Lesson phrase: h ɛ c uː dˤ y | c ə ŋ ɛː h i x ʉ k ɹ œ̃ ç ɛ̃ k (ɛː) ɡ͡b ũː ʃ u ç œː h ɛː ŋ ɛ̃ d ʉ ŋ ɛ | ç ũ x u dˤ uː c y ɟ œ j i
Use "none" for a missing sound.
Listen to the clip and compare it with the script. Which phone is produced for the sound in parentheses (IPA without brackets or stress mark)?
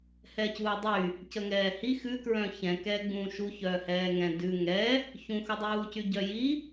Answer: ɛː